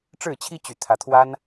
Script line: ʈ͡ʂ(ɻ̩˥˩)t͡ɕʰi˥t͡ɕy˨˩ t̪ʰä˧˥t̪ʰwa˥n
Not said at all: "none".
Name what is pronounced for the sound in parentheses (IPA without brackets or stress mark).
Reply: ɻ̩˥˩